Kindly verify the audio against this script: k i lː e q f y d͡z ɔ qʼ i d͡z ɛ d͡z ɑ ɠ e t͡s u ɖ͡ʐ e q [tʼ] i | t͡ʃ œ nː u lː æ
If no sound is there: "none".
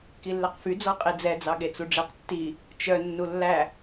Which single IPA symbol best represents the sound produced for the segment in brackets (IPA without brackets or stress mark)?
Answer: tː